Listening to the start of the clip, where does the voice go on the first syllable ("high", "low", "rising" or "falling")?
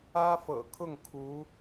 high